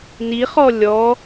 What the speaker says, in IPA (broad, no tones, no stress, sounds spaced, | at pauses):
n i χ ɔ lʲ ɔ